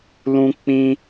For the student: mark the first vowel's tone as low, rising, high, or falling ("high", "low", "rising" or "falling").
high